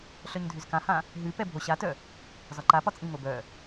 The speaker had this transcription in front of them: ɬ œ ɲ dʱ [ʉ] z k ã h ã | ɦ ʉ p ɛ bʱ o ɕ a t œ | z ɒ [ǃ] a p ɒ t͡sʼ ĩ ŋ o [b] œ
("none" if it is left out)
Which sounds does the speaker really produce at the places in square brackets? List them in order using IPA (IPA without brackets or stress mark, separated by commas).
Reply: ʉ, ǃ, b